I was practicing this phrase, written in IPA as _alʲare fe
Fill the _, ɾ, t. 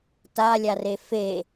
t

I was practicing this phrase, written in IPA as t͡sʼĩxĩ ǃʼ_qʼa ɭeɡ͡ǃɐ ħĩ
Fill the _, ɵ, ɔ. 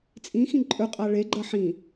ɵ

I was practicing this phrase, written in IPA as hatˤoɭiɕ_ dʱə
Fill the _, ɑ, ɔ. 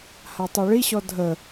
ɔ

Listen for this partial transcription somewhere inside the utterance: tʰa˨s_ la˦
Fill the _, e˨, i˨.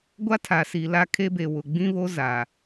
i˨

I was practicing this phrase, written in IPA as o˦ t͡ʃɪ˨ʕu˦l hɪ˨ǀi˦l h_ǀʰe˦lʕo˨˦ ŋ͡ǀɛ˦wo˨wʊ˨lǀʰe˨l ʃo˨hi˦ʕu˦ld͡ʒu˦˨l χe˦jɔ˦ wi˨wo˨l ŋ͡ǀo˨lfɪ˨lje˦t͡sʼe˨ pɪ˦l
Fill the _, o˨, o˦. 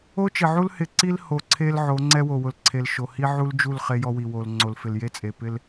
o˨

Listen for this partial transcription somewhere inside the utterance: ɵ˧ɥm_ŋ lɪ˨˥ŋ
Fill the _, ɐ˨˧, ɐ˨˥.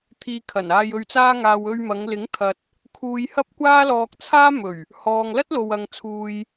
ɐ˨˧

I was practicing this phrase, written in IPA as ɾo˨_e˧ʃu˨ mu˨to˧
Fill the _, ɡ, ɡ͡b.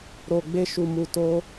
ɡ͡b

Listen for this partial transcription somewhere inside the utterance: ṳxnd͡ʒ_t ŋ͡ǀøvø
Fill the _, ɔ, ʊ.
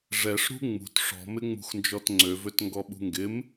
ɔ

